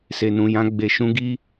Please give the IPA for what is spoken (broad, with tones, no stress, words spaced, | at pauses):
se˨nũ˨jã˧ ɡ͡be˨ʃũ˨˦ ɡi˧